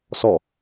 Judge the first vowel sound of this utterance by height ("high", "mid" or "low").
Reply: mid